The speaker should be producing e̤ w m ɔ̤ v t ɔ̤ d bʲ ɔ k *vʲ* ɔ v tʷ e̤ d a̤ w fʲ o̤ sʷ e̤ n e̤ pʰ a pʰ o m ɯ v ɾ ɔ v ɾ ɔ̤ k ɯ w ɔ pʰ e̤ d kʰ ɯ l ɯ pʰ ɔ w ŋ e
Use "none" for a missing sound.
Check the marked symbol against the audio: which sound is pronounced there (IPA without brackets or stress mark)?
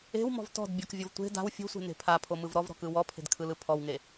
vʲ